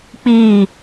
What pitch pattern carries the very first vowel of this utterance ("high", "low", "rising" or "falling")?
falling